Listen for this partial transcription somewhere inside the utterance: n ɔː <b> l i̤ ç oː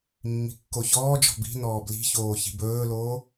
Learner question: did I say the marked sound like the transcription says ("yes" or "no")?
yes